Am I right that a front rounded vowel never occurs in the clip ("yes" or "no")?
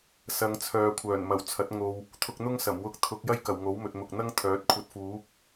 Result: no